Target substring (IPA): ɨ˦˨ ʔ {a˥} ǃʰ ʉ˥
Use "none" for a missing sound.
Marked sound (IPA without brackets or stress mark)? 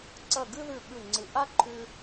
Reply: a˥